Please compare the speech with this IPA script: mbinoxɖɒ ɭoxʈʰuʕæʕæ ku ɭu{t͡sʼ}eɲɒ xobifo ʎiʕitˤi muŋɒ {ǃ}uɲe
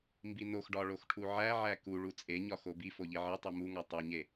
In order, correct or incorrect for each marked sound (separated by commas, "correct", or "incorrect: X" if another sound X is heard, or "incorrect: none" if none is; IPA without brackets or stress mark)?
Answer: correct, incorrect: tˤ